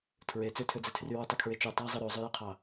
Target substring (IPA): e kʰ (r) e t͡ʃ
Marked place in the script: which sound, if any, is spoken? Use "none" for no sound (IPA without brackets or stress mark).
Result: ɹ